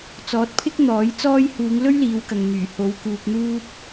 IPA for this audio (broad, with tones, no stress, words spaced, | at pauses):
t͡sɔː˨˥t̚pʰɪ˥k̚n̪ɔː˨˥j t͡sɔː˥j huː˨˧ŋ lɵ˥ɥliː˨˧wkɐ˨ŋ n̪yː˨˩ ho˨˧w kuː˧k̚n̪uː˥p̚